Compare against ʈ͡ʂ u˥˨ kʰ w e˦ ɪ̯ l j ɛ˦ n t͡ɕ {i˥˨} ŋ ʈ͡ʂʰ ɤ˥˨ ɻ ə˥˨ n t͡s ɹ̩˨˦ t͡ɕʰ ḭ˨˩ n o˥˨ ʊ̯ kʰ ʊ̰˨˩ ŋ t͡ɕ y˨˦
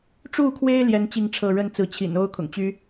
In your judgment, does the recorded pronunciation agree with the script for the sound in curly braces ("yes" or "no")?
yes